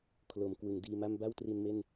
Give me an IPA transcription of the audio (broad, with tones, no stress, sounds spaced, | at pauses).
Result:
kʰ l o˩˦ m k w ɯ˩˦ ŋ d iː˧ m a˥˩ m b a˥˩ w t r i˧ n m e˥˩ n